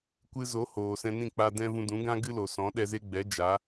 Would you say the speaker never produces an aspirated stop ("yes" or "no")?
yes